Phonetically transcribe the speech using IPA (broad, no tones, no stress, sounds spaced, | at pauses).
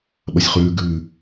ɓ ɐ sʲ χ ʉː ɡ ʉː